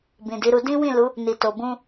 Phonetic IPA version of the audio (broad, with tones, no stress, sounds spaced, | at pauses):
b ĩ˨ d i˨˦ ɾ u˧ d ĩ˦ w ĩ˦˨ l u˨˦ | n i˨ t o˨ b ũ˧